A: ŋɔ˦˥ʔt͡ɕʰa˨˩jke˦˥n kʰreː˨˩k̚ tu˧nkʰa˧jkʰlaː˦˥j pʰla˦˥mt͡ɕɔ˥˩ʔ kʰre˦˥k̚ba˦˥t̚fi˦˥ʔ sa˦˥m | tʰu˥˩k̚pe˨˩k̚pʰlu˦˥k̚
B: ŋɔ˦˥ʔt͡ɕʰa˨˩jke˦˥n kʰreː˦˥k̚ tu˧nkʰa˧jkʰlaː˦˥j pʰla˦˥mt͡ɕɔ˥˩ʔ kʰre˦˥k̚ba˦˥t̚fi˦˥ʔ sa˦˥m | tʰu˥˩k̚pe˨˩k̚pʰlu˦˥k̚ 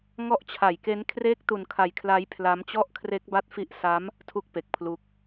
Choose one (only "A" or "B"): B